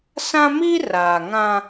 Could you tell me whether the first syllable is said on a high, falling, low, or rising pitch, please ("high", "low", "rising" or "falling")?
high